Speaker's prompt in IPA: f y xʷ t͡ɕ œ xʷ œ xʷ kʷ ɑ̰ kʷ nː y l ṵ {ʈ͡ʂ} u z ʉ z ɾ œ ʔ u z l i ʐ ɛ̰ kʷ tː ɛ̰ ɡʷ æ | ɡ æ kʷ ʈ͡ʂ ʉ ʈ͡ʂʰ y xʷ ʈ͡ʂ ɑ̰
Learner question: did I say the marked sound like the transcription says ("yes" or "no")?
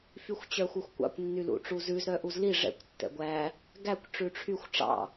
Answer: yes